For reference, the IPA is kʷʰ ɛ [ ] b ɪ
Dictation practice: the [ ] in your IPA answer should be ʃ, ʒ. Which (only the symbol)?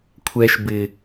ʃ